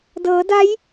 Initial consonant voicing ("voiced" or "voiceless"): voiced